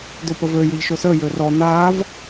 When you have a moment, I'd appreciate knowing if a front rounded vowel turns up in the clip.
yes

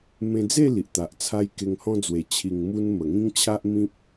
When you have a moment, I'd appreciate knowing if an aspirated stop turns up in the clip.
yes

